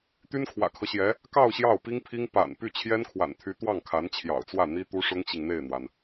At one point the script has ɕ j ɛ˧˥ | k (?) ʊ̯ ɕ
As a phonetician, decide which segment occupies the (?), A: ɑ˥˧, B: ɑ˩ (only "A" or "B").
A